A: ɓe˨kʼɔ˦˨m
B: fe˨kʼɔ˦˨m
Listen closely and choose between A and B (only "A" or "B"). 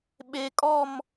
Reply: A